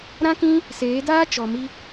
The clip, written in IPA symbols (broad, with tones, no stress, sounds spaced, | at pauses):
ɾ ã˦ k ĩ˦ | s eː˨˦ d aː˦ t͡ʃ ɔ˨ m i˦